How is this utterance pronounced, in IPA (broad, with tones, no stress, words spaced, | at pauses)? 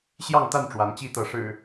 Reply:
ɕjɑ˥˨ŋt̪a˥˨n ʈ͡ʂwa˨˦nt͡ɕi˦t̪ɤ˨˦ ʂɻ̩˨˩